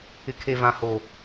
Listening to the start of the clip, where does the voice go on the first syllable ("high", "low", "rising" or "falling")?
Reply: low